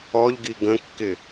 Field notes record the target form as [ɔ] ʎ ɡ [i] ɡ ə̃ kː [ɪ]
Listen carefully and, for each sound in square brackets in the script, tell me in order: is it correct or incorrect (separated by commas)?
correct, correct, correct